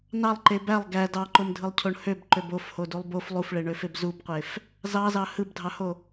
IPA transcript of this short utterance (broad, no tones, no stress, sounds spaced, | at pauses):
n ɑ lˠ ǃ e b æ lˠ ɡ æ d ɑ ǃ o m dʱ ɯ lˠ cʰ o ɳ h ø b ǃ ø b o f h o d u lˠ b o f lˠ u f ɭ e ɳ ø f e b z u b qʷ e f | z ɑ z ɑ h ɯ b dʱ ɑ h o